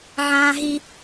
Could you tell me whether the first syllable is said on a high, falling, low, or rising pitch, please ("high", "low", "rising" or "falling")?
high